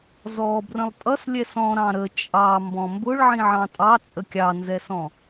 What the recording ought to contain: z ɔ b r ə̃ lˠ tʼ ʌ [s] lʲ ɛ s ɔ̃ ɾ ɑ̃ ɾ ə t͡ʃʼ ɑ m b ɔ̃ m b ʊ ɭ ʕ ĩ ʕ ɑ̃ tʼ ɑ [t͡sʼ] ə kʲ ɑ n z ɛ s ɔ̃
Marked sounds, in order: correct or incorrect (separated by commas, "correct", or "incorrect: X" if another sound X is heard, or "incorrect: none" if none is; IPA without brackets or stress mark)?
correct, correct